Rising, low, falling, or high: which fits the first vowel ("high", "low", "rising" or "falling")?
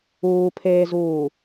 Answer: low